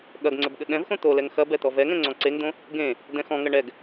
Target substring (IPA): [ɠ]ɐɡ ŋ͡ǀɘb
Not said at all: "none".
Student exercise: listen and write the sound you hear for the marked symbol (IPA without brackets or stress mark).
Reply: ɠ